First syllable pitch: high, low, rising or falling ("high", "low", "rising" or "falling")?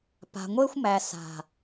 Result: low